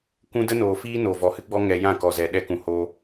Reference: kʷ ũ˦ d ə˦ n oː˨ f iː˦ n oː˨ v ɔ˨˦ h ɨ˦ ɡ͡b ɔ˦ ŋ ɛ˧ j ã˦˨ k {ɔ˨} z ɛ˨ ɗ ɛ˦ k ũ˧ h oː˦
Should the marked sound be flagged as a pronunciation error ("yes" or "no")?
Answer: no